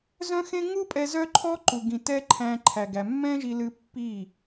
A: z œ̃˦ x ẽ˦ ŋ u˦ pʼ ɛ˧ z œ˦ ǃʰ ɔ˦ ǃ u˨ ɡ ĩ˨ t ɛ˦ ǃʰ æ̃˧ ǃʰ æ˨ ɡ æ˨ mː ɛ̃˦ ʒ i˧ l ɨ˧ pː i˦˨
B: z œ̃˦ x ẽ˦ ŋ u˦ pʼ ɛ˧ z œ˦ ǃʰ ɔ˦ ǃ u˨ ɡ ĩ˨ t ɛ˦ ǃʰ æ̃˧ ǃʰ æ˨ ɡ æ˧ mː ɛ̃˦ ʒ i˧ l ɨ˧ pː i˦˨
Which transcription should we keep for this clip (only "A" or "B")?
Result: A